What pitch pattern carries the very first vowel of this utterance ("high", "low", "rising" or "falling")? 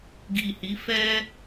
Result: low